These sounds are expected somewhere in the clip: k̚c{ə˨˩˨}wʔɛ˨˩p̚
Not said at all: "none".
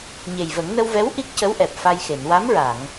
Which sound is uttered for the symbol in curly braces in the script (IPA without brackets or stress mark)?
ə˧˥